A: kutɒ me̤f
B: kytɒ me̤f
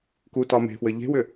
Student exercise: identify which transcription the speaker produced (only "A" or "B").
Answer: A